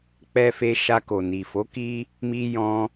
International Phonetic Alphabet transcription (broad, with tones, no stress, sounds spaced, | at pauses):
k͡p ɛ˧ f e˧ ʃ a˧ k o˨ n i˨ f o˨˦ k i˦ | m i˧ j ɔ̃˧